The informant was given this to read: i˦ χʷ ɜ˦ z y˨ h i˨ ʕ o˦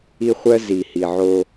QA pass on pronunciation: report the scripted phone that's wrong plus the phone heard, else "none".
y˨ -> i˨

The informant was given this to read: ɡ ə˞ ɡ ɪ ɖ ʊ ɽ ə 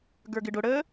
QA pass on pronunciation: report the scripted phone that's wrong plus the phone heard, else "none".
none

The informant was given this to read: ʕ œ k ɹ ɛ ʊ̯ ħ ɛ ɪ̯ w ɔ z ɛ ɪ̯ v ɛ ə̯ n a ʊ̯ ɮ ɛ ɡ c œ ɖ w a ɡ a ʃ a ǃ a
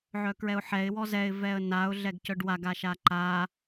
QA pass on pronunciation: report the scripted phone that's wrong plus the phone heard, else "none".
none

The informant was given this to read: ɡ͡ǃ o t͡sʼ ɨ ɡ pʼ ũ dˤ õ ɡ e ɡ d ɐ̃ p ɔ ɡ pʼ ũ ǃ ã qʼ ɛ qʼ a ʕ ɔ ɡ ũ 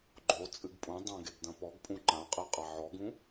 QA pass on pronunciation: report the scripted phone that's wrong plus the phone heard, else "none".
none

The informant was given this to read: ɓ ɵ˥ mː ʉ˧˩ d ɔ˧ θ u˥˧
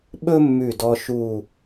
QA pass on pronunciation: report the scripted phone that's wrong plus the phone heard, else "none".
θ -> ʃ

